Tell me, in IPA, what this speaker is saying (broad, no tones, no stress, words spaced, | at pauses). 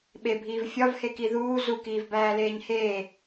ɓebʱiːv fʲɒvheki ðuː zukiːvbæːleːɲ heː